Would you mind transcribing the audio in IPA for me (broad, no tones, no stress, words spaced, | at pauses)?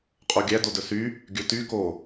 qʼoɡʲæ dodɵsy | ɡʲɵty ko